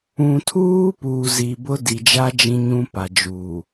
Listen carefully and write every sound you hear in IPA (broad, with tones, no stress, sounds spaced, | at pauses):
ũ˨ tʰ uː˦ p uː˨ z i˨ b ʊ˦ d i˨ d͡ʒ a˦ d͡ʒ ĩ˦ ɲ ũ˦ p a˨ d͡ʒ uː˨